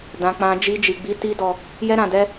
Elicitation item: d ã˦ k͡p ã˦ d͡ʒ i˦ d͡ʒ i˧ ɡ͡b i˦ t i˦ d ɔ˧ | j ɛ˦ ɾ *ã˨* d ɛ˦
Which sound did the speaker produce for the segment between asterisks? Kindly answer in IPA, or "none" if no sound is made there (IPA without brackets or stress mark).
ã˧